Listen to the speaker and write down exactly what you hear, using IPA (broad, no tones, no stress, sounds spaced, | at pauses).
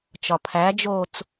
t͡ʃ ɒ pʰ æ d͡ʒ o t͡s